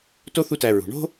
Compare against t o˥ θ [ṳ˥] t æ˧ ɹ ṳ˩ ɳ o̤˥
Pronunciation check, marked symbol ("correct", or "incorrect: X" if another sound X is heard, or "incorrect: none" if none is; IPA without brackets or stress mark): incorrect: u˥